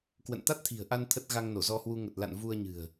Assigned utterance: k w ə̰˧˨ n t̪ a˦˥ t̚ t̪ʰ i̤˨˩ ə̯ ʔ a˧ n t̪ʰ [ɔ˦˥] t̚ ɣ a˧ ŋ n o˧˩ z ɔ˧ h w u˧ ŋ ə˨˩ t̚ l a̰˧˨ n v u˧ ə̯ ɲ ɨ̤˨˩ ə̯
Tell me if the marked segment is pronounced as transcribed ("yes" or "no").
no